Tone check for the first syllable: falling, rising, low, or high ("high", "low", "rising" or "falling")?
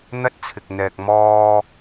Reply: high